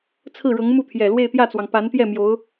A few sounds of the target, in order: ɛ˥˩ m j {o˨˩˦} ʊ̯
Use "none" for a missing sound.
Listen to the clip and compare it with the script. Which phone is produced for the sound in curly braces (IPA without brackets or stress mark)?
o˧˥